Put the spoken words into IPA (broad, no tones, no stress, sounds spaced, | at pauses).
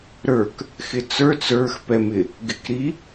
ɾ ə˞ k | x ɪ t͡s ə˞ t͡s ə˞ x p ɛ m ɪ | ɡ ɪ k ɾ i